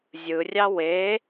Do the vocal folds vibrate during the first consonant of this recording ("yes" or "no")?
yes